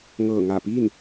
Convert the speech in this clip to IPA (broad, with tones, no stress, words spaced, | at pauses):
ŋɤː˧˩ ŋa˧˩piː˥˨n